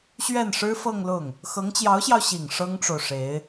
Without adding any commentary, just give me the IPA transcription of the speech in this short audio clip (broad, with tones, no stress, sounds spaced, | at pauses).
ɕ ɥ ɛ˥˩ n ʂ ɻ̩˥ f ɤ˥˧ ŋ l ʊ˥˩ ŋ | x ɤ˧˥ ŋ t͡ɕ j ɑ˧˥ ʊ̯ ɕ j ɑ˧ ʊ̯ ɕ i˨˩ ŋ ʂ ɤ˥ ŋ ʈ͡ʂ o˨ ʊ̯ ʂ e˧˥ ɪ̯